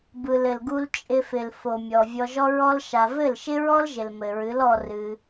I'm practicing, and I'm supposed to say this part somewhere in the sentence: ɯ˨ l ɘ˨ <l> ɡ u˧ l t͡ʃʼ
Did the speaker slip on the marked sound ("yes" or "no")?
no